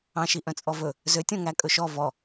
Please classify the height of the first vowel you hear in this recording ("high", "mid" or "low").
low